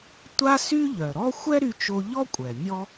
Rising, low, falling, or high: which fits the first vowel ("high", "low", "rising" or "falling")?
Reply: high